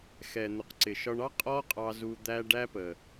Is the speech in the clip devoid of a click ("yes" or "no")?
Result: no